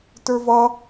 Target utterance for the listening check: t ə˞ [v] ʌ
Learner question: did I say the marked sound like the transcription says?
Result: yes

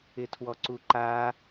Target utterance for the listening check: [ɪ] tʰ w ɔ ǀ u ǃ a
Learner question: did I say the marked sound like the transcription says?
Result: yes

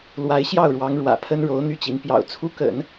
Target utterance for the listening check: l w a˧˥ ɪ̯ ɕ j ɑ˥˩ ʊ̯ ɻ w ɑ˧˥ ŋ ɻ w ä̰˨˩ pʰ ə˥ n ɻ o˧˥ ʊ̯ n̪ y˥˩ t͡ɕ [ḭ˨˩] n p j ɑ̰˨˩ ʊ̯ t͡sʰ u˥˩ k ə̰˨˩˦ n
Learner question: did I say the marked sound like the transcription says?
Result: no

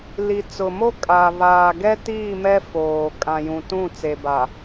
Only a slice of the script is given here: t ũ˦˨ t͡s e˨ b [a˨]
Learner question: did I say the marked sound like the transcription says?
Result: yes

